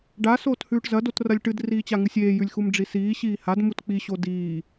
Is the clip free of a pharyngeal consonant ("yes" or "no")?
yes